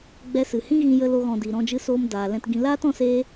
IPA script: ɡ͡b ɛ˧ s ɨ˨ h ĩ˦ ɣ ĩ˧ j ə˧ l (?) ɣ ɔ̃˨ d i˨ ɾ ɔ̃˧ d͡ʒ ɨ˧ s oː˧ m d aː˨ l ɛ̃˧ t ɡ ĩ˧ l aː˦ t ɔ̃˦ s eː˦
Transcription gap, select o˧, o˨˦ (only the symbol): o˧